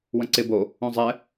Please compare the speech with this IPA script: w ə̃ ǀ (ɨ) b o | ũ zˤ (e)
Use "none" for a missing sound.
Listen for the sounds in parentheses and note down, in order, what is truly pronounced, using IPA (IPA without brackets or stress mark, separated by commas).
ɪ, ɛ